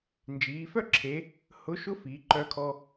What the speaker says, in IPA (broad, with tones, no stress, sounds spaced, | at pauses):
n d͡ʒ iː˩˧ f œ˥ ǁʰ e˩˧ | h ʊ˧˥ ʃ ʊ˥ f iː˩˧ ǃ œ˧ kʰ ɔ˧